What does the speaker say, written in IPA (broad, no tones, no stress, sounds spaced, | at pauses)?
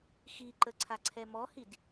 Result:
x i ǃ ə ǀʰ a ǀʰ ɛ m ɔ h i d